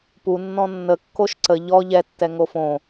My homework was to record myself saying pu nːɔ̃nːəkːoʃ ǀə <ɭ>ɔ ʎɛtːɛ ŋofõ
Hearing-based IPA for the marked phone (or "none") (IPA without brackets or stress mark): ʎ